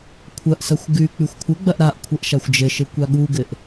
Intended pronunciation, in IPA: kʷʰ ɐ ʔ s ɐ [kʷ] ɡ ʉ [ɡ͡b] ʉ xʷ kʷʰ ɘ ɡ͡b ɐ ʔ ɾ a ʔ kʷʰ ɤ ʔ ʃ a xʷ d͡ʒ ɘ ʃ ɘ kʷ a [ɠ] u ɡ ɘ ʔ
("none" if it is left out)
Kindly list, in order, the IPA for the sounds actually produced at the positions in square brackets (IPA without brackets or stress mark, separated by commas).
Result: xʷ, k͡p, ɠ